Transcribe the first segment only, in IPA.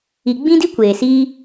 i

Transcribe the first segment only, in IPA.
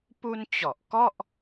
p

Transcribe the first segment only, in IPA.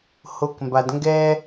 h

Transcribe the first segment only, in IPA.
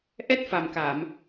ʔ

